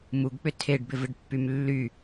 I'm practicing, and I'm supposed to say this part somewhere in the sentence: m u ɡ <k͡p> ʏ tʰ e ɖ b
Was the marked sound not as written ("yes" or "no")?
no